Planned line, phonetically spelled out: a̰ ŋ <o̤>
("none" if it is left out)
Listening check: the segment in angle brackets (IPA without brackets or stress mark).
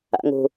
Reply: o̤